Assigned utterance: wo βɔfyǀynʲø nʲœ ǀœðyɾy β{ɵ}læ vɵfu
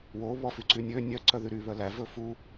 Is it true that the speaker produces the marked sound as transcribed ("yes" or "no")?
no